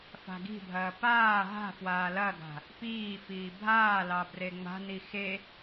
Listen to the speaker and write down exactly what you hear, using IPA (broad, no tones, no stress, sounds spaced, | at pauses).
f a̤ ɡ i̤ bʱ ɐː p aː ɦ a̤ f w aː l ɐ ɡ a̤ | p iː f iː bʱ aː l ɑ b r e ŋ͡m a̤ n i x e